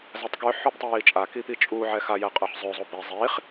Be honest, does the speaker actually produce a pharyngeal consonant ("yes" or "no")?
yes